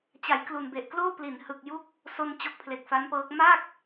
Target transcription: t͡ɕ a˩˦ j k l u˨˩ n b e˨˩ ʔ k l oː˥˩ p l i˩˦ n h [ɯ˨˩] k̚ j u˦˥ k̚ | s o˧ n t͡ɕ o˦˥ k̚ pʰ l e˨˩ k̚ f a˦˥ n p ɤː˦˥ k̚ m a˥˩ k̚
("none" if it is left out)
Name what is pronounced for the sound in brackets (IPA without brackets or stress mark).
ɯ˨˩